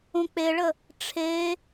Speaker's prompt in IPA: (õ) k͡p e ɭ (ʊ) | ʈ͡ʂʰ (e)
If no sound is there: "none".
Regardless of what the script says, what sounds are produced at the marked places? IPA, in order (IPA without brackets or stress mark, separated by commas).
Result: õ, ə, e